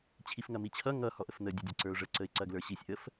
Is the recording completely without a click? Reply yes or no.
no